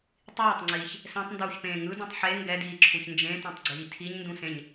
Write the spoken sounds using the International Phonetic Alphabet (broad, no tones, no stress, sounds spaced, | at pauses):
tˤ iː tˤ ŋ͡ǀ iː ç | s ɛ̃ tˤ n d uː ç p ẽː ŋ ɯ d ũ tˤ ħ e ŋ ɡ ɛ d iː ǁʰ u ç n d͡ʒ ẽ t ɛ̃ tˤ ɡ͡ǀ iː tʰ i ɲ n d ũ s ẽ ɲ